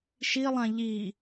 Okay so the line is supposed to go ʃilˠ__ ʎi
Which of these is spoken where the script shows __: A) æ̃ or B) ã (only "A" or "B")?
B